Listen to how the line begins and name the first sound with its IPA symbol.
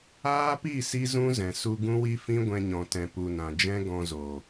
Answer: aː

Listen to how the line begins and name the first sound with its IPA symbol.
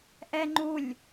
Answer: ʔ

